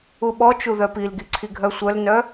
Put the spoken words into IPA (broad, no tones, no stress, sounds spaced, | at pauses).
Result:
u ɓ ɔ t͡ʃ u ð œ p i l ɡ i ǀʰ i ɡʱ œ sʷ œ l n œ